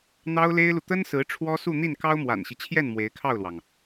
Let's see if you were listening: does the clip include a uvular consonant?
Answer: no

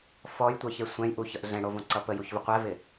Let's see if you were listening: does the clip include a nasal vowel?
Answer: yes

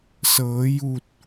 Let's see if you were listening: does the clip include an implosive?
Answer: no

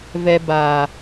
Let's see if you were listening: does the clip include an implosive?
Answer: no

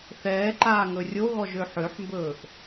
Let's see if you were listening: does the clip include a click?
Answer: yes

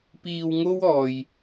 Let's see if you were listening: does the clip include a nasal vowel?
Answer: no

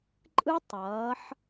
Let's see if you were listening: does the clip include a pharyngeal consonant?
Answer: yes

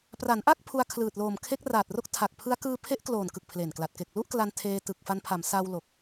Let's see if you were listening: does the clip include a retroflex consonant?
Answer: no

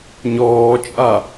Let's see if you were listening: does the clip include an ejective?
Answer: yes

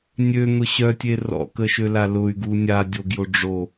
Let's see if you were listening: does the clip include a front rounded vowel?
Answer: yes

